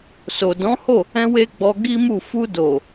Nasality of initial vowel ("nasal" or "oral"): oral